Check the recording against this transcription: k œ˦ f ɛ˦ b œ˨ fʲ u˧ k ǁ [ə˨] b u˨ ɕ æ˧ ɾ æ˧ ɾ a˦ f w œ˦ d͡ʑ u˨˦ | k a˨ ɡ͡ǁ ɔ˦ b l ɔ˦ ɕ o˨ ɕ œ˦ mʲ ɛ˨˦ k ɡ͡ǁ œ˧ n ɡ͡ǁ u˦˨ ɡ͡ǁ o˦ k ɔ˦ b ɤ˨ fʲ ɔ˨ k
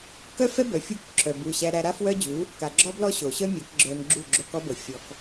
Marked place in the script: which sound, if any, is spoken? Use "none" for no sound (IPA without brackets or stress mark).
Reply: œ˨